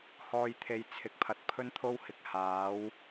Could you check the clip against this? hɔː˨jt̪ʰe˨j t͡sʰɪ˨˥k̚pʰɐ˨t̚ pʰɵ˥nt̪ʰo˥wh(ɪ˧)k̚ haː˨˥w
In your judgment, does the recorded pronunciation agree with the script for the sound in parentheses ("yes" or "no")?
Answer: yes